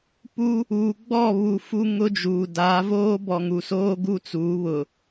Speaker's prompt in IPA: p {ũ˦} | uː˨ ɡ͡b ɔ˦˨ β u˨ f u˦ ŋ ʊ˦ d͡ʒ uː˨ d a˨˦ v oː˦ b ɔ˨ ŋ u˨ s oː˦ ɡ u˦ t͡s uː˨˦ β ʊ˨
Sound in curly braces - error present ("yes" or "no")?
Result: yes